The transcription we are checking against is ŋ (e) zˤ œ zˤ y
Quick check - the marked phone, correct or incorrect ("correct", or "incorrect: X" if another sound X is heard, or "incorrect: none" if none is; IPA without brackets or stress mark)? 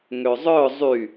incorrect: ø